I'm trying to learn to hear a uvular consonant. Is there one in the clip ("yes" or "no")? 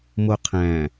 yes